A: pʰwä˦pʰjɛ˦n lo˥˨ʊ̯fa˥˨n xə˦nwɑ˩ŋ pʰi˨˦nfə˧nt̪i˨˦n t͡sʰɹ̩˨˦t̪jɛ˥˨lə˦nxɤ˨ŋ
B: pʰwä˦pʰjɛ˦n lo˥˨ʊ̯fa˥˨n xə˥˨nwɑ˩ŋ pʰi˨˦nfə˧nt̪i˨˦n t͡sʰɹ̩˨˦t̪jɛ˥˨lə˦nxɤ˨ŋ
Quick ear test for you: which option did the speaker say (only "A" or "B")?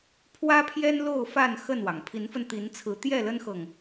B